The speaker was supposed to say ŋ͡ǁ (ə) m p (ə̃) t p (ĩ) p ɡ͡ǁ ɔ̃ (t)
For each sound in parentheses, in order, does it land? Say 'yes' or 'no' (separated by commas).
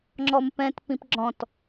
no, no, yes, yes